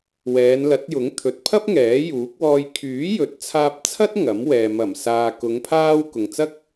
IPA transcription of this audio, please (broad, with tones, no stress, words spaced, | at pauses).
wɛː˨˧nlɐ˨˥t̚jʊ˨˥ŋ t̪ʰɵ˨t̚pʰɐ˥p̚ ŋɛː˨˥juː˨˥k̚wɔː˧j kʰyː˨˥jɵ˨t̚ t͡sʰaː˧p̚t͡sʰɐ˥t̚ ŋɐ˨˥mwɛː˨ mɐ˨˩msaː˨ kʊ˨˧ŋ pʰaː˧w kʊ˨ŋt͡sɐ˥k̚